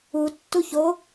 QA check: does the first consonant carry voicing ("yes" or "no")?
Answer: no